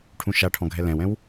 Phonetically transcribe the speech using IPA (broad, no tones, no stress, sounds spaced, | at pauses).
ʈʰ ũ ʃ a ʈʰ ɔ̃ ɡʱ ɛ l ɛ̃ w ɛ̃ w